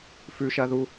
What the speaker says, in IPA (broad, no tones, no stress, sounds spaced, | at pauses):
f ʉ ʃ ɐ ð u